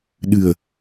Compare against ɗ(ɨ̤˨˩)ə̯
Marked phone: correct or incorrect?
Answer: correct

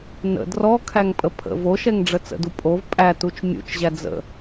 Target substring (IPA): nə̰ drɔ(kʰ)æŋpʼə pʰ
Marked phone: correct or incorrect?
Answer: correct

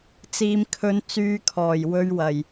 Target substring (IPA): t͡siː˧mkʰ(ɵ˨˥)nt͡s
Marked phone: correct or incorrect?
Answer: incorrect: ɵ˧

